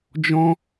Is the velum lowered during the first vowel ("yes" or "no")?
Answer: yes